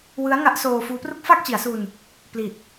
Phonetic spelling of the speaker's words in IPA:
w ɯ˦˥ a̯ ŋ a˦˥ ʔ s oː˧ f uː˦˥ p r u˥˩ k̚ f aː˥˩ k̚ t͡ɕ i˩˦ a̯ s u˧ n | p l i˨˩ t̚

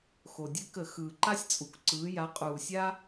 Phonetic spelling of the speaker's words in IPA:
x o˩ dʲ ɘ˦ k ə˧˩˧ x ɯː˩ ǃ a˦ sʲ t͡sʼ u˩˧ k ǀ ɯː˩˧ j a˩˧ qʼ uː˩ sʲ a˦

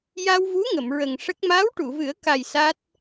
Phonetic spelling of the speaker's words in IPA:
j a˧ w v u˧˥ ŋ ə˨˩˨ m ɹ ə˨˩ ŋ ʂ ə˦˥ k̚ m aː˧˥ w ʈ u˨˩˨ v ɨ˨˩˦ ə̯ k a˨˩ j s a˦˥ t̚

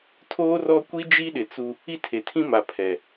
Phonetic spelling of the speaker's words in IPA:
tʰ oː˦ r ɔ˦ kʷ i˦ d͡ʒ i˦ ɗ ɪ˨ t͡s u˦ | i˦ tʰ e˨ tʰ ĩ˦ m a˨ pʰ ɛ˨

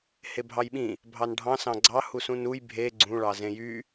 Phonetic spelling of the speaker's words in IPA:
h e bʱ ɑ j ɓ ĩ | bʱ ɑ n ɖʱ ɑ̃ s ɑ̃ ɡ͡ǀ ɑ h u s ũ n u j bʱ e ɡ͡ǀ ũ ɭ ɑ z ẽ j y

